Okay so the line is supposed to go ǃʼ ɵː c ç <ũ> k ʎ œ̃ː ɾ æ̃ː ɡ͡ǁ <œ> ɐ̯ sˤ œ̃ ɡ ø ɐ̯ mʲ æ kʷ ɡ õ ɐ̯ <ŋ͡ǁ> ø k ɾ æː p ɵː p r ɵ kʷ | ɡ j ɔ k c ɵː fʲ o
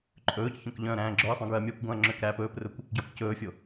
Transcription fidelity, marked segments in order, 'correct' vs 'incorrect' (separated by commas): incorrect, correct, correct